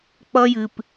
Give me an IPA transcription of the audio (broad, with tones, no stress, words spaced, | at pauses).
k͡pʌ˦jɨ˨p